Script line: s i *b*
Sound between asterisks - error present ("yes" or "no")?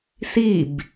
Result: no